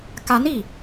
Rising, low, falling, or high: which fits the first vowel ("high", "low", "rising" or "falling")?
rising